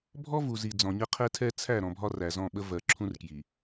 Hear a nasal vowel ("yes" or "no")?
yes